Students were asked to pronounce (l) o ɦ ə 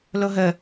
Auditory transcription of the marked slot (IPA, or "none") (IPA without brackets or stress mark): l